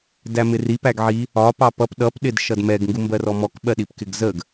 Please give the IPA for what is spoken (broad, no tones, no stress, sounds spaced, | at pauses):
d æ m ɪ r i p æ ɡ ʕ i | ɒ p ɑ p ʌ p ɗ ʌ p ɗ ɪ d ʃ ʌ d m ɛ ɡ ŋ ɡ u m b ɜ r ɔ m ɔ k ɓ ɜ ɗ i p k ɪ ɡ z ə ɡ